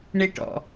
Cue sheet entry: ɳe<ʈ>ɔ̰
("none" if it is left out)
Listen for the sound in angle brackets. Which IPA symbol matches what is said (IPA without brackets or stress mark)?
ʈ